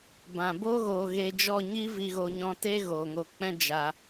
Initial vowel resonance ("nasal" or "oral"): nasal